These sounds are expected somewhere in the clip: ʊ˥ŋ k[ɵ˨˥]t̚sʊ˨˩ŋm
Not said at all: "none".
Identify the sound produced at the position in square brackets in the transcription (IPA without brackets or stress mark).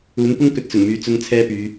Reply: ɵ˨˥